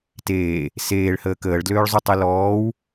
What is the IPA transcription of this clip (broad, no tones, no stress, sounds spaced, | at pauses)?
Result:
t eː | s eː ɭ h əː k əː ɭ d l øː ɭ zˤ u tˤ ɛ l ɔː w